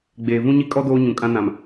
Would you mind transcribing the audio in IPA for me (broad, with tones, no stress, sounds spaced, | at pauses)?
ɡ͡b eː˨ v ũ˦ ɲ i˦ kʼ ɔ˦ d oː˦ ɲ ũ˨ kʼ ã˦ n ã˨ m